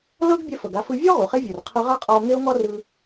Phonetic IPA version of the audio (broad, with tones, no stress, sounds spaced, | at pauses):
l ɤ˥ ɡ bʲ ɛ˧ f ɤ˩ ɡ a˧ f ɯ˧ vʲ o˥ ʁ u˩ χ e˥ vʲ ɯ˩ r qʰ ɯ˧ ʁ a˥ qʼ ɔ˧ o̯ ŋ e˥ o̯ ŋ ɔ˥ r ɯ˧